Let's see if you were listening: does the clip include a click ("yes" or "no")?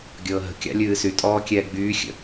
no